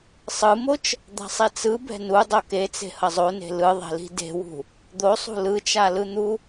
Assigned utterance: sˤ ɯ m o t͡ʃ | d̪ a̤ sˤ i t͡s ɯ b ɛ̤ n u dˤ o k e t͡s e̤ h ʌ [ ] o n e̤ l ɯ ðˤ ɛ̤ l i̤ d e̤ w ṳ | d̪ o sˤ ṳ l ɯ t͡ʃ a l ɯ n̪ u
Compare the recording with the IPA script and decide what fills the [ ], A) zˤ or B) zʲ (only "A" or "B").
A